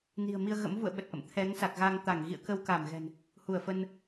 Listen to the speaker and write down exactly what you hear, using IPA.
ni̤˨˩ə̯mi˧ə̯ɣə̰˧˥m vṵ˧˨ə̯ɓə˨˩t̚ʔə̰˧˨m t̪ʰɛ˨˦ŋsa˨˩k̚ɣa˧ŋ t̪a˧˩ŋ ɣḭ˧˨ə̯kə˧w ka˧˩mɣɛ̤˨˩n | hu˧˩ə̯fə˧n

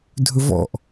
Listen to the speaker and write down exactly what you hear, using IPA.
dʱɵvɔ̰ʔ

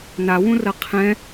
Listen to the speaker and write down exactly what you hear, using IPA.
nawũrɐ qʰɛ̃

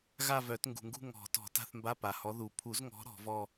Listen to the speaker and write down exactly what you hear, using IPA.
ɣa˥˧vœ˨˩˦t ŋɡṳ˩ŋɡṳ˥˧ ŋɔ̤˨˩˦ tɔ̤˨˩˦ ta̤˧˥˧θmba˧˥˧pa˩hɔ˨˦ ðu˩pʰu˨˩˦zŋɔ̤˨˦ ɾɔ̤˨˩˦ vɔ˥˧

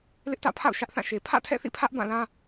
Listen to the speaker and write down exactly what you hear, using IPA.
lɪ˦ʔtä̰˦˨pʰa̰˦˨ʊ̯ ʃä˦ʔθã˦˨ʃe˨ pʰä̰˦˨tʰɛ̰˦˨θḭ˦˨pʰä˦ʔ bã˦˨lã˦

